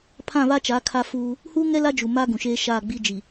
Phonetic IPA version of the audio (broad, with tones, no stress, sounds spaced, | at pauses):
pʰ ã˦˨ β a˦ t͡ʃ a˨˦ kʰ a˦ f uː˦ | h uː˦ ŋ ɛ˦ l a˦ d͡ʒ u˨ m a˦ ɡ ũ˨ ʃ eː˦ ʃ aː˦˨ ɡ͡b i˦ d͡ʒ i˨